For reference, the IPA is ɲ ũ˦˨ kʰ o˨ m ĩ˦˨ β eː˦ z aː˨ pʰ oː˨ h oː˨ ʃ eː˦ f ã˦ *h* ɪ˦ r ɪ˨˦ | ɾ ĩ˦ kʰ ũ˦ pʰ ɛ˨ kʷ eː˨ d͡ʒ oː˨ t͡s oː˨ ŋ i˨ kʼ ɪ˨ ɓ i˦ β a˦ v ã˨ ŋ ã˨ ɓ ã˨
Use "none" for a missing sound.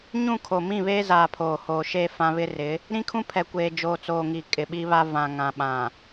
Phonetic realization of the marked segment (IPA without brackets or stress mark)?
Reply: β